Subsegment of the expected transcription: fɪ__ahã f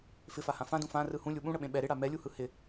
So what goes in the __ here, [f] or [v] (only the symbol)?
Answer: f